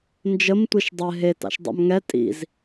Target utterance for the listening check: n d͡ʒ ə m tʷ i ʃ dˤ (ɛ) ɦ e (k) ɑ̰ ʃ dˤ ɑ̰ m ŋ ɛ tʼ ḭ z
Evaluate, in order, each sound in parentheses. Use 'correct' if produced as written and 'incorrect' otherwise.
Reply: correct, incorrect

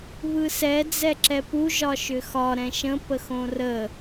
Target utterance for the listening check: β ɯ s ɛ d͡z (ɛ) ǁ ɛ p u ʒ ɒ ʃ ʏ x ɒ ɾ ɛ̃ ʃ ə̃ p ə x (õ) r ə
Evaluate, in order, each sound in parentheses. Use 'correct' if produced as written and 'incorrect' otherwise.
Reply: correct, correct

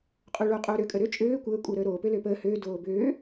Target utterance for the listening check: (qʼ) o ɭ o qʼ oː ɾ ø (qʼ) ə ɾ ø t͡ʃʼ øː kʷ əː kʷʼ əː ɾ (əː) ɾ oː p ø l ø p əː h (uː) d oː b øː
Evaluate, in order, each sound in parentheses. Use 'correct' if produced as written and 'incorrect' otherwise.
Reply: correct, incorrect, correct, incorrect

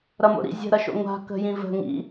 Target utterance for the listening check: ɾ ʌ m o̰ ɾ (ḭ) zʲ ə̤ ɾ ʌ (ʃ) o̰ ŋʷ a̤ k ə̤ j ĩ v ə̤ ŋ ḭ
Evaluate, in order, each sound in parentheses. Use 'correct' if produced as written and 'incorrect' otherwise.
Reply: correct, correct

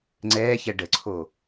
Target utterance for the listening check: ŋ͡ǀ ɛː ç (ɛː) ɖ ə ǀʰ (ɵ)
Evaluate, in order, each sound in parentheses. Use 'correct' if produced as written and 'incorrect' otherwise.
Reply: incorrect, incorrect

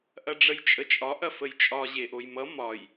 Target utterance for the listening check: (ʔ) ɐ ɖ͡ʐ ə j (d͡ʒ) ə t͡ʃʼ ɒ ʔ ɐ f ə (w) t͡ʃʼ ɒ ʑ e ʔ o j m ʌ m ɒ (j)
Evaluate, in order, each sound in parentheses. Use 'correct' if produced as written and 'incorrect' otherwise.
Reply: correct, incorrect, incorrect, correct

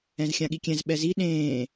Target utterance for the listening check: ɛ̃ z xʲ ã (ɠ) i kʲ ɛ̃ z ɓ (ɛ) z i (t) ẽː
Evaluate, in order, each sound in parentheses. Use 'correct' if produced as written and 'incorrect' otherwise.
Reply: correct, correct, incorrect

